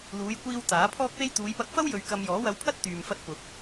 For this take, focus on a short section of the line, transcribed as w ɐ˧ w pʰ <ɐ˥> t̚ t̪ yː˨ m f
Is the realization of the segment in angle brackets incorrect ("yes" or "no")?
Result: no